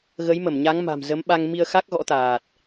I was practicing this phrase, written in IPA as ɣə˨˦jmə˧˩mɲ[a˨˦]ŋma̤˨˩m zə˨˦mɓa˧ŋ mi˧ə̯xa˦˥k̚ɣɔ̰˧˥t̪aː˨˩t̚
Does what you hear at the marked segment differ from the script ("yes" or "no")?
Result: no